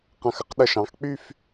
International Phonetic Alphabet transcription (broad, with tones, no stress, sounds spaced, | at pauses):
q ã˧˩ x ə˥ q ɗ ə˧˩ ʃ ɑ̃˩˧ x k͡p y˥˧ f